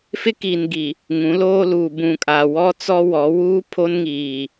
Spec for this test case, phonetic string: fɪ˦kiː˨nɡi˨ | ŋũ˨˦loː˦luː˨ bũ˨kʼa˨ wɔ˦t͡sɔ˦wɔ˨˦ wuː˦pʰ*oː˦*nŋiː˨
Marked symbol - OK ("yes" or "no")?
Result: no